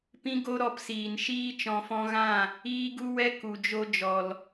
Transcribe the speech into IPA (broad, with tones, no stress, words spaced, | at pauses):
pĩ˦ɡo˦ ɾɔ˧psiː˨nʃiː˦ t͡ʃɔ̃˨fɔ̃˧ɣã˦˨ | iː˦ɡu˦wɛ˦ ku˨d͡ʒo˧ d͡ʒɔ˨l